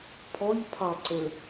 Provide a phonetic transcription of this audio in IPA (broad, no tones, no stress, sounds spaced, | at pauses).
pʰ ɔ ʎ pʰ ɑ ǀ ə